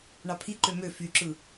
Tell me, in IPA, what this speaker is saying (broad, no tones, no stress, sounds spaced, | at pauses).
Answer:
ɳ ɑ pʰ i ǃ ø m ø f y ǁ ɯ